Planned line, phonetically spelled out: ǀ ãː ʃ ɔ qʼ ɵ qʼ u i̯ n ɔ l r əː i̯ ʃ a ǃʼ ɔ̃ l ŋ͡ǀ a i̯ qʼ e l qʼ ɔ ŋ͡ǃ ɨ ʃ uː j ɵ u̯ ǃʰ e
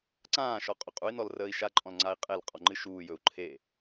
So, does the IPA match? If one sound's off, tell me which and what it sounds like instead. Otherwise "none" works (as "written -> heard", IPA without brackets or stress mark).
none